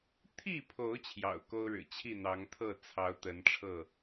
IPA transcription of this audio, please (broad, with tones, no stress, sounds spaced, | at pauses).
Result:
t̪ʰ i˥˨ pʰ o˨˦ ʊ̯ t͡ɕʰ j ɑ̰˨˩ ʊ̯ k o˦ ʊ̯ ɻ ɻ̩˨˩ t͡ɕʰ i˥˨ n̪ ɑ˨˦ ŋ t̪ʰ ɤ˥˨ t͡sʰ ɑ˨˦ ʊ̯ t̪ ə˨˦ n ʈ͡ʂʰ ɤ˥˨